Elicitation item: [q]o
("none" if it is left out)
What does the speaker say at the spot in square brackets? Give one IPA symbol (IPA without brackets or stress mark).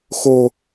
x